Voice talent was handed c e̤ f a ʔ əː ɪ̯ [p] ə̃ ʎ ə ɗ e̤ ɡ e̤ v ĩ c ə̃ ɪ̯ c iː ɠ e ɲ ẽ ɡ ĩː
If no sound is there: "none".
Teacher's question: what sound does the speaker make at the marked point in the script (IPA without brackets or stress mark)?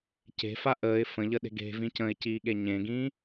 f